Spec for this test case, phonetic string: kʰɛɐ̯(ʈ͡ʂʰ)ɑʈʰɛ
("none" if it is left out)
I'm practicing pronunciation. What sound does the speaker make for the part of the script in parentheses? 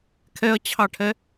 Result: t͡ɕʰ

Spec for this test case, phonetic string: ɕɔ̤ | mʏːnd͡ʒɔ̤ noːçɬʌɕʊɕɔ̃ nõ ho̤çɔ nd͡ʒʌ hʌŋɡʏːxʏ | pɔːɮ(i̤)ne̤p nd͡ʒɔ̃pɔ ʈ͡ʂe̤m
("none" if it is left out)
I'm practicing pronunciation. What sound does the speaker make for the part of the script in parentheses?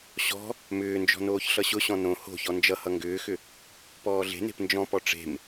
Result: e̤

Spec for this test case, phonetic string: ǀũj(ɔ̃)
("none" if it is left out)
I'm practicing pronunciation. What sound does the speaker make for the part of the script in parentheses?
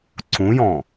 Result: ɔ̃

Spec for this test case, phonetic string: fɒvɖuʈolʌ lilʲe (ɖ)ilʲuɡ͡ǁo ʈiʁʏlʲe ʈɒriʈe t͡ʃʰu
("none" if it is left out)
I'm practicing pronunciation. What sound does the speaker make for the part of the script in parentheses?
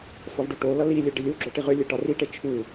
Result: ɖ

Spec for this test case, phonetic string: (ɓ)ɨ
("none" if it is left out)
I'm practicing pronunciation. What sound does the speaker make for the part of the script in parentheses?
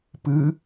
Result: p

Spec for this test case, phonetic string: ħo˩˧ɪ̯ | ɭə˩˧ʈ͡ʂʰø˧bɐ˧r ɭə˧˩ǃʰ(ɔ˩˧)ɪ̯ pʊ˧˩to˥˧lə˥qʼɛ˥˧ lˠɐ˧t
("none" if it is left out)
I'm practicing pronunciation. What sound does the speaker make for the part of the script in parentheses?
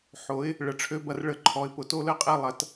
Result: ɔ˩˧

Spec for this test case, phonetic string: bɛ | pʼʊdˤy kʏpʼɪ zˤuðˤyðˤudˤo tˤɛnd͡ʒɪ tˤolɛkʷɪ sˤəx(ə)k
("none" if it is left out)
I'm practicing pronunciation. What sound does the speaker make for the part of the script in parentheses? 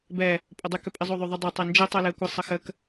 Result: ə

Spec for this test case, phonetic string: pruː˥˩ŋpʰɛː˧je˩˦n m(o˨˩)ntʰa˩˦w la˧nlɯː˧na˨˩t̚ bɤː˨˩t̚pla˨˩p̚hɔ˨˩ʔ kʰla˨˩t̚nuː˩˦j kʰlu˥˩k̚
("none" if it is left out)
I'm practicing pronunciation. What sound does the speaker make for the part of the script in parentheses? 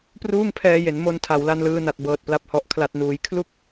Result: o˧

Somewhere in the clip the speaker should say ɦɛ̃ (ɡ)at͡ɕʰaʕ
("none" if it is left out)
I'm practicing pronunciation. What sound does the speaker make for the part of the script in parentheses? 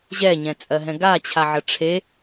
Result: ɡ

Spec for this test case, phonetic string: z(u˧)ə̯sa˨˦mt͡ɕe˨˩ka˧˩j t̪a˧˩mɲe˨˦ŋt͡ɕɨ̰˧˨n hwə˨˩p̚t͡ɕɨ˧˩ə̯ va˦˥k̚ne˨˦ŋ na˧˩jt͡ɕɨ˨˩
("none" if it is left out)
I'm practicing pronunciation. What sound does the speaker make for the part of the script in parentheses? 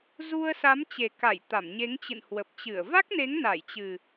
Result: u˧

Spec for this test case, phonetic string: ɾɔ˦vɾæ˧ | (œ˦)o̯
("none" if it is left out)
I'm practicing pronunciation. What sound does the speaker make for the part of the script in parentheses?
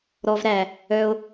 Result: œ˦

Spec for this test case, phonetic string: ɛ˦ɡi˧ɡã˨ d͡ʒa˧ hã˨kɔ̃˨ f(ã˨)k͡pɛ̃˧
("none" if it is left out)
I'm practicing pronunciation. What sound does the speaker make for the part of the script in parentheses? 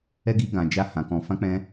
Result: ã˧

